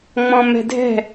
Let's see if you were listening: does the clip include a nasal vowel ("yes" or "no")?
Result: yes